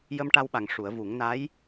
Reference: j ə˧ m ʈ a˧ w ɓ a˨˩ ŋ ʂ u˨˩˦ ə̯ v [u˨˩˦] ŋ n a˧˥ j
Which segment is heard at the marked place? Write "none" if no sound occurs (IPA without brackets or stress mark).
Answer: u˨˩˦